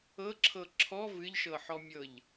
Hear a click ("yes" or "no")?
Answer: yes